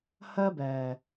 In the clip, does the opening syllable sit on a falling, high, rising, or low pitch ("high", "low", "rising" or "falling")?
high